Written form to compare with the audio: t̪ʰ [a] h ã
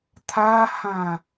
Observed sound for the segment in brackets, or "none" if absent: a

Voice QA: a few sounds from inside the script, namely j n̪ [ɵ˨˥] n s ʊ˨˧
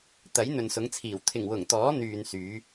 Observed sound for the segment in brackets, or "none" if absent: ɵ˨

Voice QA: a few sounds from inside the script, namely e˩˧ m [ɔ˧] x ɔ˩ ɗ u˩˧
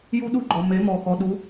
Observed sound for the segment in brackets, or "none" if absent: ɔ˩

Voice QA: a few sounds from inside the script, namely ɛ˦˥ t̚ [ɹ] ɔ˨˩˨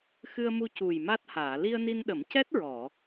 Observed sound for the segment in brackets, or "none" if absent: ɹ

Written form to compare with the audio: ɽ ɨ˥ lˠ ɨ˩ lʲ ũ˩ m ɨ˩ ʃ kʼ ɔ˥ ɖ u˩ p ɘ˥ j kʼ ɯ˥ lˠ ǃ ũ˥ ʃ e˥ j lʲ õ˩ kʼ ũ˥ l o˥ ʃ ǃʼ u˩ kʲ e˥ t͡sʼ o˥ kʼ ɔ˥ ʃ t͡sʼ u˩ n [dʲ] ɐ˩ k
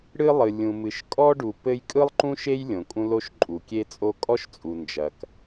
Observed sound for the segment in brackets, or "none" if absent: d͡ʒ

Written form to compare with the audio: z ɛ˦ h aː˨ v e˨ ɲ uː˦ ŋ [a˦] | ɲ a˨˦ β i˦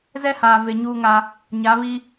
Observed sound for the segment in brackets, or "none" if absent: a˦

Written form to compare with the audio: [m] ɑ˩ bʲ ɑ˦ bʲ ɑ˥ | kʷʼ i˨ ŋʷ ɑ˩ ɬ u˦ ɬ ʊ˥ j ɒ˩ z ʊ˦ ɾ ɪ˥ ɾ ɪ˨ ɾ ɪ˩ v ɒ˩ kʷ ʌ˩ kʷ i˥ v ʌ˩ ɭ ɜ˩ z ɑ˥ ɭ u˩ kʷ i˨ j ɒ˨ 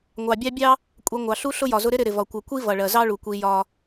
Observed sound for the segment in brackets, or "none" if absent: ŋʷ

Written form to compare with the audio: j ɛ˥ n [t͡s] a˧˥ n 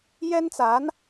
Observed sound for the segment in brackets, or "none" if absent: t͡s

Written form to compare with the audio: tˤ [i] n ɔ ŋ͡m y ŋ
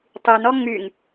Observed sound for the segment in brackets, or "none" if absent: y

